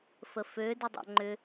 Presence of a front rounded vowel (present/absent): present